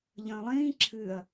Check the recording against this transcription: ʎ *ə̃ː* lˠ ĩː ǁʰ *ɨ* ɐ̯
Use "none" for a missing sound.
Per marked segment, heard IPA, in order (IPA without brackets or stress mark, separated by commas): ə̃ː, ɨ